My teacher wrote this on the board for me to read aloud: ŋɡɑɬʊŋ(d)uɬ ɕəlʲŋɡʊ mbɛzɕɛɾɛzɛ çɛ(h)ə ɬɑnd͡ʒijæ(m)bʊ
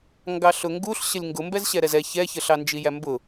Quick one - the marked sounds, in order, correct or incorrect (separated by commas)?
incorrect, incorrect, correct